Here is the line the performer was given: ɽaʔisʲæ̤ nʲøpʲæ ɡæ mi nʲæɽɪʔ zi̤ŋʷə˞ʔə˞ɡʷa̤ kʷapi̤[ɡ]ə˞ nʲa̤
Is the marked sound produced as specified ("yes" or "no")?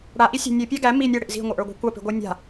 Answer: no